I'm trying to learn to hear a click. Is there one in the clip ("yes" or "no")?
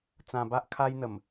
no